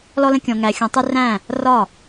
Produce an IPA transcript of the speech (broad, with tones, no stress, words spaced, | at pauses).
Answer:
lɔ˦lə̃˦kʲɔ̃˧ ŋæ˧xʲɔ̃˧tˤɪ˦ ræ̃˦˨ | rɒ˦˨